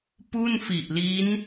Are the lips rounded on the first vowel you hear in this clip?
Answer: yes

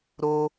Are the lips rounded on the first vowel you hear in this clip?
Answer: yes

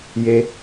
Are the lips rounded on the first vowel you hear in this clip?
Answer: no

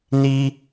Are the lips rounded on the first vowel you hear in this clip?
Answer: no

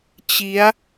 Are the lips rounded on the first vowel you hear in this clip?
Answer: no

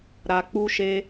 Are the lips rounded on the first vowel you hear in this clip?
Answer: no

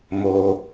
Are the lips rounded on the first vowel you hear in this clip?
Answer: yes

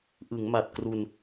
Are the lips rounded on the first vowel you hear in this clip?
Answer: no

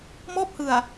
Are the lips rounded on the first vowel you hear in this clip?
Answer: yes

